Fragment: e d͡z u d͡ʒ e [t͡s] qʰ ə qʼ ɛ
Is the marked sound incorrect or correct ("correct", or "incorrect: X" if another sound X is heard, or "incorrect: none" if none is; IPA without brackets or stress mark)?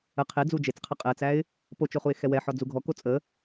correct